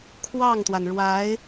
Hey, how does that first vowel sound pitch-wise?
falling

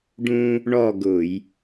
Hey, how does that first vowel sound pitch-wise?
high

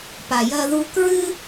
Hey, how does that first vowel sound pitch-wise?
low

